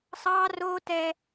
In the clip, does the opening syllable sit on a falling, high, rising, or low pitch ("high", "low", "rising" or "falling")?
high